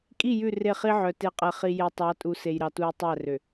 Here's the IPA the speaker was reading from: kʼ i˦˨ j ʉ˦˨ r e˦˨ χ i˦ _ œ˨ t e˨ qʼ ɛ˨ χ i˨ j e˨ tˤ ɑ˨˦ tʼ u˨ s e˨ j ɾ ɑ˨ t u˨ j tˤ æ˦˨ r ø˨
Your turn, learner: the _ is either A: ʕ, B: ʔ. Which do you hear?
A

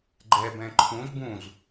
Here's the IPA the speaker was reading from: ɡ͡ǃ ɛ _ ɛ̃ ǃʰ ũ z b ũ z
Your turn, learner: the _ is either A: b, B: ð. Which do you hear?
A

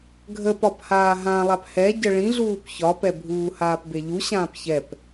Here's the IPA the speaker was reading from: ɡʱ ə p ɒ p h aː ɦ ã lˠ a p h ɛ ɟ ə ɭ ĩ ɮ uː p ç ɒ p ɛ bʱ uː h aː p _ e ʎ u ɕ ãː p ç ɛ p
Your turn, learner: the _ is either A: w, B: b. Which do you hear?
B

